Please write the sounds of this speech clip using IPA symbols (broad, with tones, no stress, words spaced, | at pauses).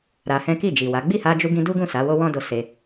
ɾa˧hɛ̃˦ ki˦˨d͡ʒi˨wa˨˦ ɡ͡bi˦˨ha˧d͡ʒu˧ ɡĩ˧du˦ɡũ˦˨ sa˨˦wo˦wɔ̃˦do˧ se˧